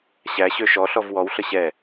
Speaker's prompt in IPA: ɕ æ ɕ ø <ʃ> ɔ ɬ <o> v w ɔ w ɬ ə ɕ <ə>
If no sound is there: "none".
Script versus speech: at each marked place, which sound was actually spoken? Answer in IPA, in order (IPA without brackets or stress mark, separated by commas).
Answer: ʃ, ɔ, ɛ